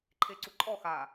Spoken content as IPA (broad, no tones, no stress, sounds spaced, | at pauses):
ǃʰ e ǀ u ǃʼ ɔ x a